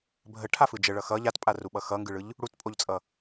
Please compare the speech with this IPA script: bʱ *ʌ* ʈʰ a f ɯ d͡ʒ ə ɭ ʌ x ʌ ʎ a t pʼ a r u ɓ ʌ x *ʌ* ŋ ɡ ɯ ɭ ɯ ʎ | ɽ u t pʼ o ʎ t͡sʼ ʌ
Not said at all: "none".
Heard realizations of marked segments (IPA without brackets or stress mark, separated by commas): ə, ʌ